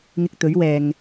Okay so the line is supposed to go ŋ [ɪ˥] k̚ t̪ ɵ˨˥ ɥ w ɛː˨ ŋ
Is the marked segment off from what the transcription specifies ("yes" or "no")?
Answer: yes